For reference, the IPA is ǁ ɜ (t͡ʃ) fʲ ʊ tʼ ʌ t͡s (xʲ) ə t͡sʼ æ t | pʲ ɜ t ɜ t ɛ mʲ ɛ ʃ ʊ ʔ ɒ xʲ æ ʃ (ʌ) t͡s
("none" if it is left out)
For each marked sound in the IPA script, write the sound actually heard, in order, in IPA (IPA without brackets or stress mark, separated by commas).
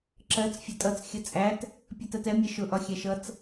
t͡s, xʲ, ʌ